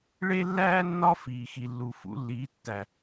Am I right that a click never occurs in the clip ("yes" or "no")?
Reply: yes